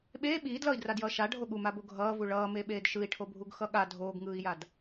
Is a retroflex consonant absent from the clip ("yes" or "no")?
no